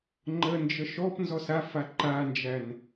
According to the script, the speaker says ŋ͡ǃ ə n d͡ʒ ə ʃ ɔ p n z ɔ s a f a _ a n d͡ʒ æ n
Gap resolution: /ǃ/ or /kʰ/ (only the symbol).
ǃ